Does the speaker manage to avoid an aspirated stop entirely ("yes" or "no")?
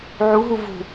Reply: yes